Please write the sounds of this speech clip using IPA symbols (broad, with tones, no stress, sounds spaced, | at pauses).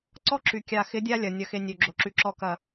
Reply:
ǀ ɔ˦ ǁ y˨ kʲ a˨ x ɪ˨˦ dʲ a˦ lʲ ɐ˨ nʲ ɐ˨ x e˨ nʲ ø˨ ɡ͡ǁ o˨ ǁ y˨ ǁ ɔ˨ k ɐ˨